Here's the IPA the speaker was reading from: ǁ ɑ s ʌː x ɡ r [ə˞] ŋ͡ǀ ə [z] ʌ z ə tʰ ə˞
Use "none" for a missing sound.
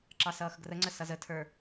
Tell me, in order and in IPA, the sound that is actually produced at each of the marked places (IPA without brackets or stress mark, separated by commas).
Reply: ə, s